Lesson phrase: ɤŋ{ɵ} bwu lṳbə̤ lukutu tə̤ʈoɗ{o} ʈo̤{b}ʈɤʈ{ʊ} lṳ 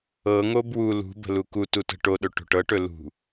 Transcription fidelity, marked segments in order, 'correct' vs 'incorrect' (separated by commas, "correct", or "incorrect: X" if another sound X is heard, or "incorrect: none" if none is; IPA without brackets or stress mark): incorrect: o, incorrect: ɵ, incorrect: none, incorrect: ɵ